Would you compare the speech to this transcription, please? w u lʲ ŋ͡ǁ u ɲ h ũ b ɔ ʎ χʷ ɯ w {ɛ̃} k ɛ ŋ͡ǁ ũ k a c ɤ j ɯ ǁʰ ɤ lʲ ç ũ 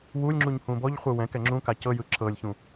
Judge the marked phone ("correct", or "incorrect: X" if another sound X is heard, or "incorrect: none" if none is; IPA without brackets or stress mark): correct